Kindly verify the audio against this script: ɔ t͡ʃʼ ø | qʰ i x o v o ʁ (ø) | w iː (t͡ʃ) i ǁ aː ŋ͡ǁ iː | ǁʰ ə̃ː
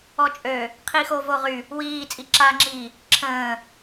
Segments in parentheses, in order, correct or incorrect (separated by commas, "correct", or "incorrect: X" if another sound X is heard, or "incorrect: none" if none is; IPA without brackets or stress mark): incorrect: y, incorrect: t͡sʼ